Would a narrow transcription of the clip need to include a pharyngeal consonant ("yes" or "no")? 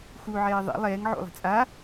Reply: yes